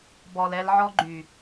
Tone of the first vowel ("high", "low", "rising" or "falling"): low